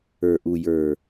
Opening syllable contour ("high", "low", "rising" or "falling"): low